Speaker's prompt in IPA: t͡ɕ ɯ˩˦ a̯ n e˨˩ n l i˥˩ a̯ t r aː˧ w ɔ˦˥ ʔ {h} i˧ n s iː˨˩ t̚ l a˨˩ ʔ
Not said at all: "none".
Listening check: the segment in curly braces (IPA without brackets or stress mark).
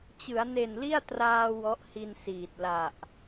h